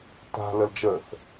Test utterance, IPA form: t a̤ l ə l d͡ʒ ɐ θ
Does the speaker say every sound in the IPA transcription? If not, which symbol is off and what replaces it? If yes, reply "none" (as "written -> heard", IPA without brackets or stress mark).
ɐ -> ə